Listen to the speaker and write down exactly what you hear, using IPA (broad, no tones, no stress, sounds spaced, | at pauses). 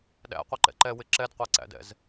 ɗ æ̰ qʷ ɪ ǃ ɛ̰ ǃ ɛ w ɪ ǁ ɛ d qʷ æ ǀ æ̰ d ɛ̰ z